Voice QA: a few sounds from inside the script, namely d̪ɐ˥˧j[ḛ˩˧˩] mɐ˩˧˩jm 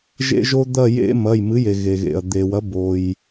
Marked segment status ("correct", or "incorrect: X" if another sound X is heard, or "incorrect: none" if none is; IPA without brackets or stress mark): incorrect: ḛ˥